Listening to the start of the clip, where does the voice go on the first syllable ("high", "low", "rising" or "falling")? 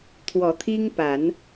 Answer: rising